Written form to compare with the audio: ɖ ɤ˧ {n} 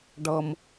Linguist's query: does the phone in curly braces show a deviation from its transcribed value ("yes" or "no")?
yes